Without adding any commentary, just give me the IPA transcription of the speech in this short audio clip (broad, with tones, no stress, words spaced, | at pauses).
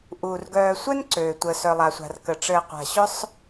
ʔuː˩rɡœː˨sʷœ˥nǀøː˩ tʷəː˩sœ˩lˠa˩sʷa̤˩r kə˩ʈ͡ʂɘː˨ qʷa̤˩ɕʊ˦sˤ